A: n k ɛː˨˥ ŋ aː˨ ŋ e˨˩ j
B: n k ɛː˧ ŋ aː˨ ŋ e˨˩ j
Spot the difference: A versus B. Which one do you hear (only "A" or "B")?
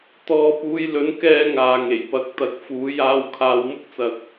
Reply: B